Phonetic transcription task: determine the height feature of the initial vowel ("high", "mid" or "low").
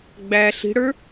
low